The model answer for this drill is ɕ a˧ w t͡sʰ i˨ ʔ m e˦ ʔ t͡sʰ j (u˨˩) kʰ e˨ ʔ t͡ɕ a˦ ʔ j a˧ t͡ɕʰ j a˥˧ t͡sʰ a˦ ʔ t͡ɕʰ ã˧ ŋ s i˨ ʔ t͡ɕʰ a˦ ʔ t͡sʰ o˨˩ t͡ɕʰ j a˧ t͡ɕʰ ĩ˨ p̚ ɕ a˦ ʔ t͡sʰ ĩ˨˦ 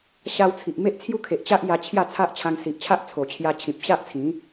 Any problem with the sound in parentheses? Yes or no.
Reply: yes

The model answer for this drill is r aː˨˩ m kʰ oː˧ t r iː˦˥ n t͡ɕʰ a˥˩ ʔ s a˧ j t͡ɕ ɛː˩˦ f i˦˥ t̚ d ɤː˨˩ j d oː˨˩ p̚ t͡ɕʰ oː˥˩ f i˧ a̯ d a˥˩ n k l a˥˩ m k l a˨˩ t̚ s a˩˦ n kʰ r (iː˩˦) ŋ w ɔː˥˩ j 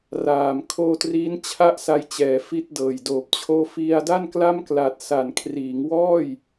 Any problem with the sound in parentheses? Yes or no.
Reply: no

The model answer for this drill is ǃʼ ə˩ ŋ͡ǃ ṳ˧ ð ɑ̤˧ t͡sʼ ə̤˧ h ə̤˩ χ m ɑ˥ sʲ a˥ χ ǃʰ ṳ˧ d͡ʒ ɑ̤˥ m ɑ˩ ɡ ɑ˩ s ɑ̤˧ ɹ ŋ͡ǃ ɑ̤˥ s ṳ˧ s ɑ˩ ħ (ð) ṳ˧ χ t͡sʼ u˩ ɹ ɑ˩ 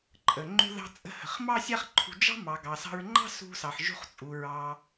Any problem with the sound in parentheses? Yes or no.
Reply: yes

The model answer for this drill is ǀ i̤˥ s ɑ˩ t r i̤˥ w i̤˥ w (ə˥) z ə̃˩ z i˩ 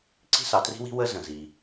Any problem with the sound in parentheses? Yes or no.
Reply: no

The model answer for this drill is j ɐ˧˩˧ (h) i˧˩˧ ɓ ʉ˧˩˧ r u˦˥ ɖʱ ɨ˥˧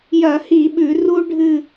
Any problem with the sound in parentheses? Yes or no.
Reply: no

